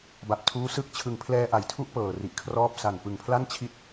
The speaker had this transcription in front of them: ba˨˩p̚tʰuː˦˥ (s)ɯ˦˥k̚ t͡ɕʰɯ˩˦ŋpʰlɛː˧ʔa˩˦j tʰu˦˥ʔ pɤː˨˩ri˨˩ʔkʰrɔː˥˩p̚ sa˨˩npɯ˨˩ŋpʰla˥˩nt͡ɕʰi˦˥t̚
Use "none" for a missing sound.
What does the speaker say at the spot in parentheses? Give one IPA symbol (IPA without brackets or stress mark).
s